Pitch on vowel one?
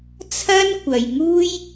high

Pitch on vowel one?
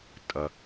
low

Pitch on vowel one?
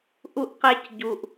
high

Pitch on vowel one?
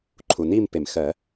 low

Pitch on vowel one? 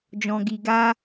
low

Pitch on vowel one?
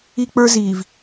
high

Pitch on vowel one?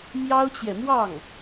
high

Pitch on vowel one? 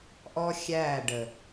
high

